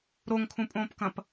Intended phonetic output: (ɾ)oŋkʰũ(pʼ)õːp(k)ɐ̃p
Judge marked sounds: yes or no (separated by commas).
yes, yes, yes